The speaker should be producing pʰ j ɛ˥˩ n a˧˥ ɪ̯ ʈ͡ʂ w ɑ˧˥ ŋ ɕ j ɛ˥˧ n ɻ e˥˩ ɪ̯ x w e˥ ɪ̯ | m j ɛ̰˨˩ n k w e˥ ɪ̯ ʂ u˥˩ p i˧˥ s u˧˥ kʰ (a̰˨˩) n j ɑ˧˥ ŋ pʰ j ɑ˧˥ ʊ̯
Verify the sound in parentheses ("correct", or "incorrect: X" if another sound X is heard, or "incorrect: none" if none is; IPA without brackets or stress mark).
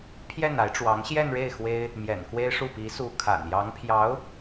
correct